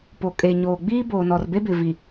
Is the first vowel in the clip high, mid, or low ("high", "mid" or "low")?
mid